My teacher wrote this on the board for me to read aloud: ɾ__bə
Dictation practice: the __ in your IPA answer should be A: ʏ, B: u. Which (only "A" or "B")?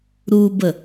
B